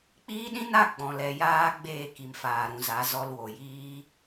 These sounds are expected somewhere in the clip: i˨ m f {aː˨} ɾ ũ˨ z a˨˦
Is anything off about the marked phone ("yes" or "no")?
no